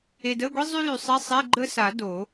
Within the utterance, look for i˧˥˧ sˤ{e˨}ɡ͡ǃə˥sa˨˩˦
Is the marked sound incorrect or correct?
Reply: incorrect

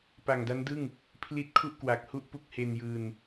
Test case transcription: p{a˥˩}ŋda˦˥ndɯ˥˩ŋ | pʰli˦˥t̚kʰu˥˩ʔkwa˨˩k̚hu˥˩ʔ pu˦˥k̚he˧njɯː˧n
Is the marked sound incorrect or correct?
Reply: incorrect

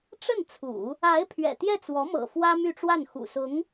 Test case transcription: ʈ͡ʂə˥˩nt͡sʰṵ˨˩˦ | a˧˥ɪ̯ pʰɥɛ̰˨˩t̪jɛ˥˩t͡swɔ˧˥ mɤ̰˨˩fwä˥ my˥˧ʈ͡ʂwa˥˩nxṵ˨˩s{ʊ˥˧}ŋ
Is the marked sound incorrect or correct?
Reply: incorrect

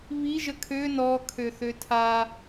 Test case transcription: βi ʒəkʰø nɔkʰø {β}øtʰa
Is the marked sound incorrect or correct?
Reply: incorrect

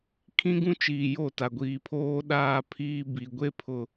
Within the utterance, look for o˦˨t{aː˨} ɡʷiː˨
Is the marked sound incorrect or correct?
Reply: incorrect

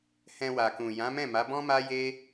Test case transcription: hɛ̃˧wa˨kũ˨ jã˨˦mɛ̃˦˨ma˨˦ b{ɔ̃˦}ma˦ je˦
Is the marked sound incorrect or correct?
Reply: correct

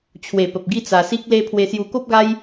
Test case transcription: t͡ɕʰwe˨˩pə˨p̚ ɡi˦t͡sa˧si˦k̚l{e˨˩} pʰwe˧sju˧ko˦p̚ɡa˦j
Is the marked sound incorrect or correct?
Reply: incorrect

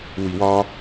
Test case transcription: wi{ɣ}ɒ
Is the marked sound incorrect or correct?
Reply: incorrect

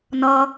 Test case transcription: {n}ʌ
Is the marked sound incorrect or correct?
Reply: correct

